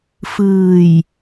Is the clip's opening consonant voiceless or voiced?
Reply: voiceless